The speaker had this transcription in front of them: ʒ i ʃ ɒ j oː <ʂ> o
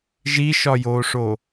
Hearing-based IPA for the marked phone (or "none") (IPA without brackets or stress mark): ʂ